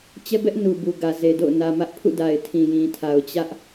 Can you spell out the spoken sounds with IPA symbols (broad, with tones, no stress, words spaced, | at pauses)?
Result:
t͡ɕɛ˦bɛ˦ʔ nu˨bu˨ɡä˨ ze˨do̰˦˨ʊ̯ nä˨mä˦ʔpʰṵ˦˨ da˨ɪ̯tʰĩ˨jĩ˨tʰa˨ʊ̯ t͡ɕä˦ʔ